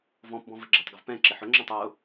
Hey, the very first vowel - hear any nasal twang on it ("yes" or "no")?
yes